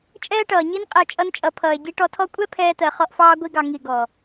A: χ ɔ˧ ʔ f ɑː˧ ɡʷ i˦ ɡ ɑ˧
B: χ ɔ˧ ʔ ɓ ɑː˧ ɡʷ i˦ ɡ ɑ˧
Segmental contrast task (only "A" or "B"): A